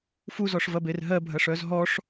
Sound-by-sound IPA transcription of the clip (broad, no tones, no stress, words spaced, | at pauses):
fuzɔʂvɐber ɦɜbʱɐʂœz ɦɔʂ